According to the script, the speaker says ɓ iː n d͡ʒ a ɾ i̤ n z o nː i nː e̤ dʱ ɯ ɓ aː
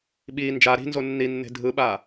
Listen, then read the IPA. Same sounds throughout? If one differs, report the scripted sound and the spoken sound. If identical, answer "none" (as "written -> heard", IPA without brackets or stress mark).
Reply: none